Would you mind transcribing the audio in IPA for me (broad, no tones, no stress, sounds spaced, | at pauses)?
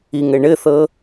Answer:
i ŋ ɘ ɳ ɘ θ ɤ